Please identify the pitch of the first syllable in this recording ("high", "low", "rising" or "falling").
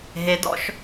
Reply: rising